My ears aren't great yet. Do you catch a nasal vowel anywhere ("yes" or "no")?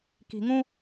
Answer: yes